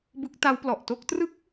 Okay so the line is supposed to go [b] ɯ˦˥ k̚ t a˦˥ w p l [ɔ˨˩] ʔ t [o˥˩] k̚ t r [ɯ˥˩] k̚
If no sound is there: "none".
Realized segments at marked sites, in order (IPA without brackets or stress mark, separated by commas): b, ɔ˨˩, o˥˩, ɯ˥˩